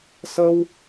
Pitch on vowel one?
high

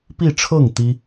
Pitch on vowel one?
falling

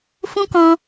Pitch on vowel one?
high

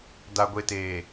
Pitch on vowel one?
low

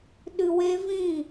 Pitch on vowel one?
low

